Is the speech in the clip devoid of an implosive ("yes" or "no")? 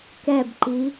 yes